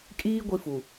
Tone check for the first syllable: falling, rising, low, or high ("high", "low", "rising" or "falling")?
high